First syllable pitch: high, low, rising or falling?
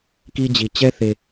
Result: high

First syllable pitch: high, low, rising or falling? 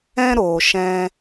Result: high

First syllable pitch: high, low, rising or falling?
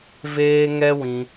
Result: high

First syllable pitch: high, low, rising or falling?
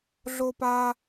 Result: low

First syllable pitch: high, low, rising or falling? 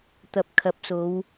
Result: low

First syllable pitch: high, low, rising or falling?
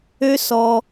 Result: high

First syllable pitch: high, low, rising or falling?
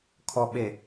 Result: low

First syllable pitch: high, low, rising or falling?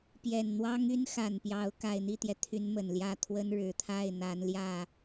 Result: low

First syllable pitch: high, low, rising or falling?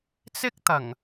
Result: high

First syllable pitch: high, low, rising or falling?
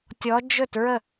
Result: rising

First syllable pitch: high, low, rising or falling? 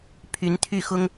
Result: rising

